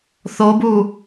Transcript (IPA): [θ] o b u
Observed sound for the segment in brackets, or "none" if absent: θ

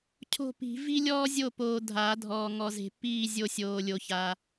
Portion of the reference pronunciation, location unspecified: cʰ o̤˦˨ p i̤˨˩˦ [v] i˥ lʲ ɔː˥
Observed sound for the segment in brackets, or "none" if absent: v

